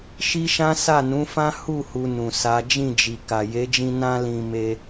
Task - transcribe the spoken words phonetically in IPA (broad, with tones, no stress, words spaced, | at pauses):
ʃi˦ʃã˦ sa˦˨nũ˨˦fã˦ hu˦˨ hu˧nũ˨sa˨˦ d͡ʒĩ˦˨d͡ʒi˨ ka˨je˨˦d͡ʒĩ˧ nã˧lĩ˨ me˧